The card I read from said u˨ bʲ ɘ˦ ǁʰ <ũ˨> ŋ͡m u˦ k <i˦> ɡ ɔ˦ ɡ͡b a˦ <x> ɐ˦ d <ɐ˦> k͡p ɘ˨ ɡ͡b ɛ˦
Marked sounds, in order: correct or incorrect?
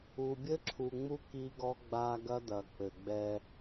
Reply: incorrect: u˨, correct, incorrect: ɡ, incorrect: ɐ˨

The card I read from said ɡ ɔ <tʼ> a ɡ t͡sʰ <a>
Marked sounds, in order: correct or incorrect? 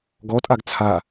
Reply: correct, correct

